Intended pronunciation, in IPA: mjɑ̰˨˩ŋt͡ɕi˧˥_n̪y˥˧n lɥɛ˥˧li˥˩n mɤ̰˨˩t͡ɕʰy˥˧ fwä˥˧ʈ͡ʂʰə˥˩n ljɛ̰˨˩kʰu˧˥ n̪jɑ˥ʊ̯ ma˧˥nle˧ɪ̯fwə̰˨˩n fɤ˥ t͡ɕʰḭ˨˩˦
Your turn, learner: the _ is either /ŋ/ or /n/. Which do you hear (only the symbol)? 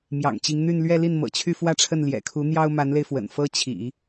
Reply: ŋ